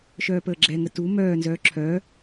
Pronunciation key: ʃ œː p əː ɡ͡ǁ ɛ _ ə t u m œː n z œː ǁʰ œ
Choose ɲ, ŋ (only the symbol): ŋ